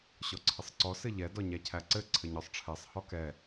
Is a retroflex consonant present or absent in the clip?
present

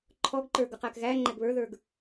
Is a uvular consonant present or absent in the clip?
present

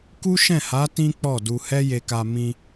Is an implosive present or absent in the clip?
absent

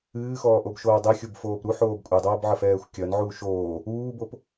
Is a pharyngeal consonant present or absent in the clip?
present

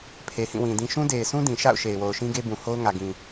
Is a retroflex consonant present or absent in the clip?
absent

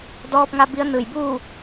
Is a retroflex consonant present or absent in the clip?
absent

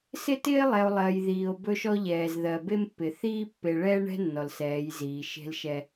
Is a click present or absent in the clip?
absent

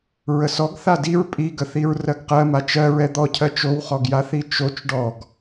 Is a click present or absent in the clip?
absent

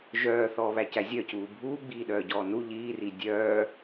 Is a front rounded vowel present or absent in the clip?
present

